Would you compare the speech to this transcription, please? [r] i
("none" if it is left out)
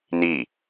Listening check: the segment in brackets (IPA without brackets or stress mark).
n